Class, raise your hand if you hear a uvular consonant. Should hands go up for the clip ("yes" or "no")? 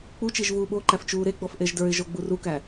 no